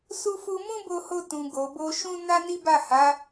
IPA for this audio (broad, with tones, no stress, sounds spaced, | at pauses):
s u˧ f u˧ m ũ˦ b o˧ h o˧ t ũ˨ ɡ o˨ b o˧ ʃ ũ˦ n a˦ n i˦ b a˦˨ h a˨˦